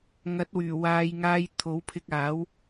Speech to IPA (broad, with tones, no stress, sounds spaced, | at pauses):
ŋ ɐ˨˥ t̚ w yː˨˩ w aː˨˧ j ŋ aː˧ j t̪ʰ o˨˥ w pʰ ɪ˧ k̚ aː˨˥ w